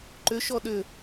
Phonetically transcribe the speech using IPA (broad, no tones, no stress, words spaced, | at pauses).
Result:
ǃʏʃɔ ɗʏ